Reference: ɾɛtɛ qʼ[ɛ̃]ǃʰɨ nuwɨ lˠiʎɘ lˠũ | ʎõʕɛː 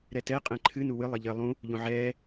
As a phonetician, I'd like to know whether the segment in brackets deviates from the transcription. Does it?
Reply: no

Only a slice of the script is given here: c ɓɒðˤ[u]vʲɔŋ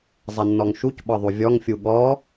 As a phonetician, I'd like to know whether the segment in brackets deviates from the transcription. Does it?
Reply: no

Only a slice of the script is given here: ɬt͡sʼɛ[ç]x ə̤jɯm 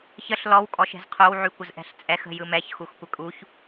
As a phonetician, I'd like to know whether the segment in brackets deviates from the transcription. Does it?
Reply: yes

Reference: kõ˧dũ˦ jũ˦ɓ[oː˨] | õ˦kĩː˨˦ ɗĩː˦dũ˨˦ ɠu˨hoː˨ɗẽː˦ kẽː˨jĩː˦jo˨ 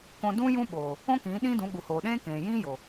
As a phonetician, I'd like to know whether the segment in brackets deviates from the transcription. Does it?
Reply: no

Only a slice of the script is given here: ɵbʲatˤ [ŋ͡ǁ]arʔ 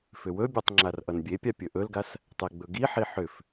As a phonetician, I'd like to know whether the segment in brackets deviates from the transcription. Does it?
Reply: no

